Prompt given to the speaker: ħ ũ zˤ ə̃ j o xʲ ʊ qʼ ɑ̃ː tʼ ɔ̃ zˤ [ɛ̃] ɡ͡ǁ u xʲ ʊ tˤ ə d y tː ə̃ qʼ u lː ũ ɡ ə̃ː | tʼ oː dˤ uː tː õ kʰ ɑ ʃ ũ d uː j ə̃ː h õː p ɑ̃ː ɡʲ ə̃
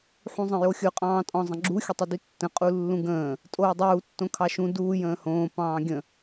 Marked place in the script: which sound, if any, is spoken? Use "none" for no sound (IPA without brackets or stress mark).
ə̃